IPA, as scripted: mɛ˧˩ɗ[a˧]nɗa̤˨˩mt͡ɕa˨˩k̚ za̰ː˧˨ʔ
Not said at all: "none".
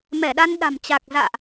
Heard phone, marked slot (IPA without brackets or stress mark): a˧